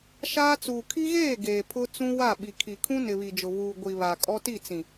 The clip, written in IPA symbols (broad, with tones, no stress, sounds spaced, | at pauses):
ʃ aː˦ t͡s uː˨ kʰ i˦ ɣ eː˦˨ ɡ eː˨ pʰ ʊ˦ t͡s ũ˦ w a˦˨ ɓ i˨ kʰ i˨ kʰ ũ˦ n ɪ˨ β i˨ d͡ʒ ʊ˨ β uː˨ ɡʷ i˨ β a˨ kʼ ɔ˦ t i˦˨ t͡s ĩ˨